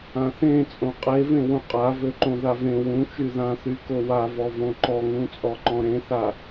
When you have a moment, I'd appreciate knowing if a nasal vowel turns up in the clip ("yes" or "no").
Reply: yes